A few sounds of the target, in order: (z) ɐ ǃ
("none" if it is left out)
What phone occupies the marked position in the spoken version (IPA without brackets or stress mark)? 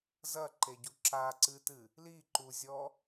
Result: z